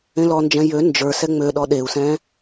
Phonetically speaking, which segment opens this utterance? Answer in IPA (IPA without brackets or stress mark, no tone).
ẽ